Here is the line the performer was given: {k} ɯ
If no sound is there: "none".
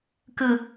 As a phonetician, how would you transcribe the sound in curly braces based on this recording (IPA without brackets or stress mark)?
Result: k